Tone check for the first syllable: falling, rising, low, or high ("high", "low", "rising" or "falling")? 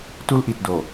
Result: high